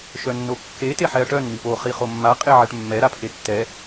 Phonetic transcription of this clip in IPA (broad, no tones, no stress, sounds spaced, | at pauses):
ʃ œ nː o kː e t e ħ ɛ ɐ̯ ʈ œ n m i p o χ i χ o mː a qʼ e ʕ ɛ ʈ mː ɛ ɾ a pʰ e tː ɛ